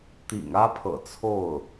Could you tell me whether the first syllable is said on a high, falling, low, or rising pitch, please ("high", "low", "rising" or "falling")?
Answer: low